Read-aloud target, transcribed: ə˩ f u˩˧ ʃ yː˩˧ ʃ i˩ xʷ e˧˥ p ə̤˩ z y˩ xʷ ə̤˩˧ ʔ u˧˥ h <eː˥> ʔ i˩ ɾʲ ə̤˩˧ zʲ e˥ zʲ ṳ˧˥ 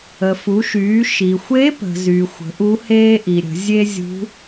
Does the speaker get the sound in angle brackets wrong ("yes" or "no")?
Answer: no